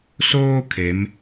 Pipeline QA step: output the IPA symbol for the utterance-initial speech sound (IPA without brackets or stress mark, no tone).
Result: s